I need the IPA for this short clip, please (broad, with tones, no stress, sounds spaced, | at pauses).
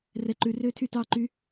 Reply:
r ɛ˨ ǃ ʉ˨ r øː˧ tʰ y˧ t ɑː˧ ǃ y˧